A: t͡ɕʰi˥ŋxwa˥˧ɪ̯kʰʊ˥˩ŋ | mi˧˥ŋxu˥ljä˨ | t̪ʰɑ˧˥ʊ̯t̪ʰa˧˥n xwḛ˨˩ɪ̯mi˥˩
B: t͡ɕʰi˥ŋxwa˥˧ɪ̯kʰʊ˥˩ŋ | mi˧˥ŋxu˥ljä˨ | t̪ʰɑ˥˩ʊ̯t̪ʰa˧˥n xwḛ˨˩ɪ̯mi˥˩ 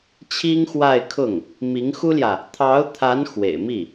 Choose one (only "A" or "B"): A